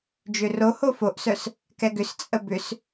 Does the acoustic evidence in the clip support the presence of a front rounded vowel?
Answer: yes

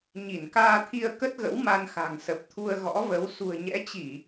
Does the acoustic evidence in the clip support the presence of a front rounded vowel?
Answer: no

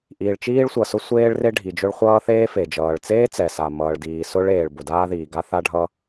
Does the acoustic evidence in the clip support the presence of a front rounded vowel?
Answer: no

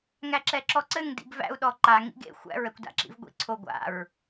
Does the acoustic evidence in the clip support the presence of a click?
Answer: yes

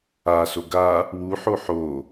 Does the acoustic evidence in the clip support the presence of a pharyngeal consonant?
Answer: yes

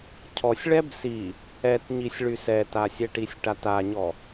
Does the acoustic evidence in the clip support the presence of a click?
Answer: no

